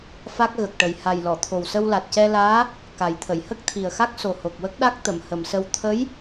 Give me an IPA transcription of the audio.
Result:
f a˦˥ k̚ ɣ ə˨˩ k̚ ʈ ə˨˩ j h a˨˩ j l ɔ˨˩˨ t̪ʰ o˨˩ w s ə˧ w l a˨˩ t̚ c ɛ˧ l aː˧˥ | k a˨˩˦ j t̪ʰ ə˨˩˨ j h ə˦˥ k̚ t̪ʰ i˨˩ ə̯ x a˦˥ k̚ s o˨˩ h o˨˩ k̚ w ə˦˥ k̚ ɗ a˦˥ k̚ t̪ ə˨˩˨ m h ə˨˩˨ m s ə˧ w t̪ʰ ə˧˥ j

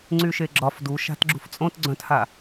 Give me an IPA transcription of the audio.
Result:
ŋ͡ǀ y ʃ e ɡ͡ǁ ɒ f d u ʃ a̤ t ɡ͡ǁ ṳ f t͡sʼ õ t ɡ͡ǀ œ̃ t h a

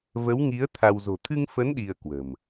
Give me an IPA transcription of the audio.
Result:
v ə˨˦ w ŋ i˨˦ ə̯ t̪ʰ a˧ w z o̤˨˩ t̪ʰ ɨ˧ ŋ f ə˨˦ n ɗ i˧ ə̯ k w ə̤˨˩ m

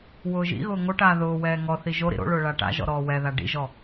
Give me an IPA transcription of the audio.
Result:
w ʊː ʒ ḭ ɣ ʊː ŋ o ʈ aː ð ʊː w ɛː ŋ ɔ θ i ʒ o ɾ ḭ ɾ o̰ ɭ ʊː ɭ a ʈ a̰ ʒ ɔ̰ ɾ ɔː w ɛ ð a ɖ ḭ ʒ ɔ

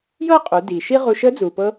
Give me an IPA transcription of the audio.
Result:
j ɤː˥ qʼ u˩˧ d iː˩ ʃ i˥ ʁ u˧ ʃ əː˧˥ d͡z uː˩ p ɤ˧

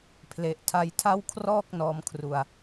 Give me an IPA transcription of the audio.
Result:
pʰ l e˨˩ ʔ tʰ a˧ j tʰ a˥˩ w kʰ r ɔː˥˩ k̚ n ɔː˧ m kʰ r u˧ a̯

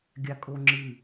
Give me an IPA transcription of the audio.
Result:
ɡʲ a kʼ o ŋ͡ǁ ɨ

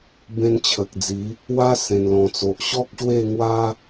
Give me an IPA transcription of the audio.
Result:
b ẽ˧ n t͡ɕʰ ə˨ k̚ d͡z i˨˦ | w a˦ s ẽ˨˩ n l ɔ̃˨˩ t͡s o˨ ʔ ɕ ɔ˦ k̚ ɕ w e˥˧ ŋ w a˦

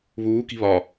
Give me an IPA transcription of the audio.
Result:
β uː k i̤ β ɒ

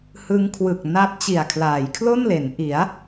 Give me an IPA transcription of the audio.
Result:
h ɯ˦˥ ŋ kʰ w ɯ˨˩ k̚ n a˦˥ p̚ t͡ɕ i˨˩ a̯ kʰ l aː˩˦ j kʰ l o˥˩ n l e˩˦ n ʔ i˩˦ a̯

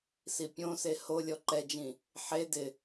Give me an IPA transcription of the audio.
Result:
s i pʲ õ s e h o lʲ ɔ ǃ ɛ d͡ʒ ĩ | ħ e d ɪ

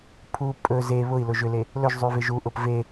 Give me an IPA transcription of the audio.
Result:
pʰ u pʼ ɵ z e β ʊ i̯ l ʊ ʒ ʏ l e | l ɵ ʒ zˤ ʉ v e ʒ u ʔ ʊ p v e

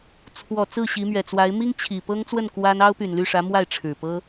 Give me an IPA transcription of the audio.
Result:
t͡sʰ w ɔ˨˩ t͡s ɹ̩˥˩ ɕ i˧˥ m ɥ ɛ˨˩ t͡s w a˧˥ ɪ̯ m i˥ ŋ t͡ɕʰ i˨˩ p ɤ˥ ŋ t͡s w ə˥˩ n k w a˥ n ɑ˥ ʊ̯ p y˨˩ n l y˥˩ ʂ ä˧˥ m w a˥˩ ɪ̯ ʈ͡ʂʰ ɻ̩˨˩ p ɤ˥

